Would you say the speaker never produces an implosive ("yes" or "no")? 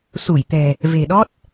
no